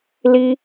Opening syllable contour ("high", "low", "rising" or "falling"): high